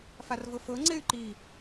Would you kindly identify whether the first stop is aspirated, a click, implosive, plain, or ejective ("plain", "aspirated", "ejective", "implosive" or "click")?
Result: click